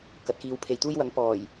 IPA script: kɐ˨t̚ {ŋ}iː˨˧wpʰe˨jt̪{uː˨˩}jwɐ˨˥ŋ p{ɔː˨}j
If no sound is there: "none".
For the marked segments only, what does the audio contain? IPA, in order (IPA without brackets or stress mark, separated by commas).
k, uː˥, ɔː˨˩